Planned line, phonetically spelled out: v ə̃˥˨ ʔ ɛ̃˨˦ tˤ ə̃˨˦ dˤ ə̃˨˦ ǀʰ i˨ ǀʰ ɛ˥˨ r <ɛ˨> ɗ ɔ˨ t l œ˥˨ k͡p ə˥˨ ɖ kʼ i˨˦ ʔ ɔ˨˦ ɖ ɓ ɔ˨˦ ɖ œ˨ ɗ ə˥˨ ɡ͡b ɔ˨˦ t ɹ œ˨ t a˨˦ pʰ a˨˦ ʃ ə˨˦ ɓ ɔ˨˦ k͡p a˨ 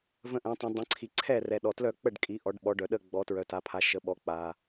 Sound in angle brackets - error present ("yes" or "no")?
no